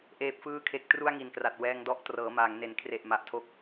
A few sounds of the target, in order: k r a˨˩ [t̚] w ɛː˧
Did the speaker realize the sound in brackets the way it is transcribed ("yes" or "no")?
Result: yes